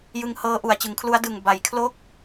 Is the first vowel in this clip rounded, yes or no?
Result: no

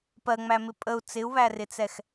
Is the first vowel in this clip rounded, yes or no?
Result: no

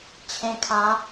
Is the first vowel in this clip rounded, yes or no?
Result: no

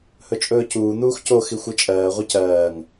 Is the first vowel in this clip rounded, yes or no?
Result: yes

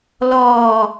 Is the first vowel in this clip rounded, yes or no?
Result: yes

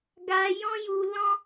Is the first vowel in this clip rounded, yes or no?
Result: no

